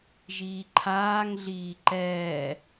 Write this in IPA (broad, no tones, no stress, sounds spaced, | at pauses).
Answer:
ʒ iː ǃʰ aː ŋ ɮ iː ǃ ɛː